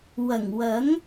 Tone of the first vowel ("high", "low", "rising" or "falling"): low